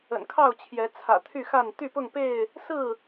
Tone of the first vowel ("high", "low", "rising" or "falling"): low